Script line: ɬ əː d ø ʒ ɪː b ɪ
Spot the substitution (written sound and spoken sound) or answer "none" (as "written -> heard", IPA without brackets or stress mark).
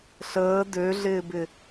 ʒ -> ɮ